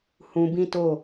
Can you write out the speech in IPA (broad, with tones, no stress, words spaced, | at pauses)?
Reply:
hũ˧bĩ˦to˦˨